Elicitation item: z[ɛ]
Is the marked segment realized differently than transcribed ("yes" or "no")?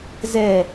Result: no